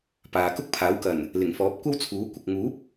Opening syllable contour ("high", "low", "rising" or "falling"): low